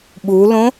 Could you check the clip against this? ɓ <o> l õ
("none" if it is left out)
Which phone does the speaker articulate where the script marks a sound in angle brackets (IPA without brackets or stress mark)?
u